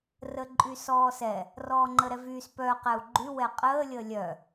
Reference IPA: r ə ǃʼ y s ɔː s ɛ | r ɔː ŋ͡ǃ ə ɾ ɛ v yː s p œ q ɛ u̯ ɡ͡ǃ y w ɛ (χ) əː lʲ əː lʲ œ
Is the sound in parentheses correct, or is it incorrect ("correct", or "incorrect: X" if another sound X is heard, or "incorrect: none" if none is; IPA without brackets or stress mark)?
incorrect: qʼ